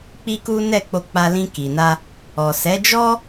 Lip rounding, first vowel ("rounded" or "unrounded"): unrounded